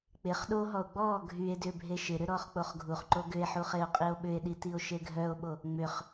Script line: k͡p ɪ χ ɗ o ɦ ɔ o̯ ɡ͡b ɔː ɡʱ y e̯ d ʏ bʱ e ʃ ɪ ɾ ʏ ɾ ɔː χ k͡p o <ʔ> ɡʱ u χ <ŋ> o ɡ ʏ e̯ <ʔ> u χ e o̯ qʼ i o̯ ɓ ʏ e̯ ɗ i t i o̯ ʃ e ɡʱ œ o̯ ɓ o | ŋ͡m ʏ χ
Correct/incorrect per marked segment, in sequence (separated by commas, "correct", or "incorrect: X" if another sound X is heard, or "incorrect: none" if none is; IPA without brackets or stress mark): incorrect: χ, incorrect: ǃ, incorrect: ħ